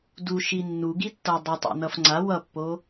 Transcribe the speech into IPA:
du ʃinːu ɡitːʌ dˤʌtˤa̰ nʌfŋ͡ǀa wʌpːo

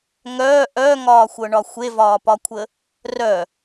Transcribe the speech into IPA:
ŋœː ʔœŋɒːxʷɤɳɒ xʷevɒːpɒkʷʰə | rœ

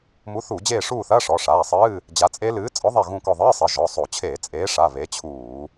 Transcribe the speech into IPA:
mu˨˥θu˧˩˧d͡ʑeː˦˨ ʂuː˦˨θɐː˧˥˧ ʂɔ˩˧˩ʂaː˩˧˩sˤɨː˧˥˧ | d͡ʑa˨˥t͡sʼe˦˥ lɨː˨˥ t͡sʼɔ˨˥ ðˤe˦˨ɣũ˦˨kɔ˦˨ ðˤɨː˧˥˧sˤɘ˩˧˩ ʒɔ˩˧˩sˤo˧˩˧ t͡ɕʰeː˧˩˧t͡sʼeː˨˥ʂa˩˧˩ βe˨˥t͡ɕʰuː˧˩˧

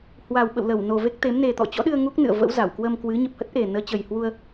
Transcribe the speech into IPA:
hwa˨˩w ɓə̰˧˨wlə˧˩w no˨˩ve˦˥k̚t̪e˨˦m ne˨˩t̪ɔ̰˧˨t͡ɕɔ̰˧˥ɗɨ˧ə̯ ŋu˦˥k̚nɨ̰˧˨ə̯ və̰˧˥wza˧˩wkwə˧mkwɨ˨˦ ɲə˨˩p̚hə˦˥t̚ʔe˨˩ nəː˨˦ t͡ɕə˨˩jhwu˧ə̯

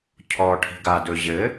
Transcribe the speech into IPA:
cʰɔʈʰi̤ ɡadɵ ʑɘ

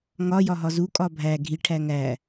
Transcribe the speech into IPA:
ŋɒ jɒɦɒzukʼɒ bʱæ ɡʱiʈʰæ ŋæ

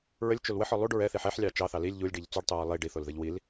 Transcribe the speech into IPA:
ɹəlʲt͡ʃol wəħɔ lˠuɖ ɹɛθiħ ɛħlʲɑ t͡ʃɑθɑ lilʲ ʎulʲɖiʎ t͡suɖtˤuɹə lˠi ɖiθolðəʎ wil

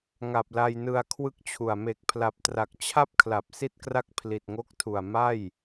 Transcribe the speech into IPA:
ŋa˨˩p̚la˧jnɯ˧a̯ kʰwɯ˥˩k̚t͡ɕʰu˨˩a̯ me˨˩k̚pʰla˨˩p̚tra˨˩k̚ t͡ɕʰa˥˩p̚kʰla˨˩p̚ si˥˩t̚kra˥˩k̚pʰli˨˩t̚ŋo˦˥k̚ tʰu˨˩a̯ma˥˩j

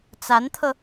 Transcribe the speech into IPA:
t͡sa˧˥nt̪ʰɤ˧

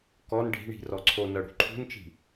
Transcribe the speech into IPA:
kɔn ɖʱi̤ɳi̤ rɔǀʰonɤ ɽṳǃʰṳnt͡ʃi̤

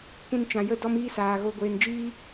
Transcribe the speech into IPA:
kʷĩ˧nt͡ʃã˨ jə˧ dɔ˦miː˦saː˨ ɣo˨ɡʷeː˨nd͡ʒiː˧

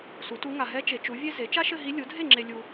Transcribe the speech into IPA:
su˩˥tu˧˥ ŋa˨ ɦɛ˧˥ t͡ʃe˩˥t͡ʃu˩˥vʲe˥ ze˩˥ t͡ʃa˥ʃɘ˥˧ɦi˧˥ lʲu˩˥dʱe˥˩ŋ͡ǁe˨ lʲu˨

